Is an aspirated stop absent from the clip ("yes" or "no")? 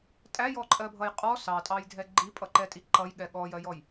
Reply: yes